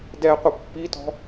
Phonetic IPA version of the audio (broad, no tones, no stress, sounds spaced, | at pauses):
d ɛ qʷ ə pː i t ɔ̤